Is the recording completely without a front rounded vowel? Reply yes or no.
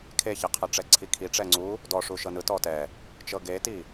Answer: yes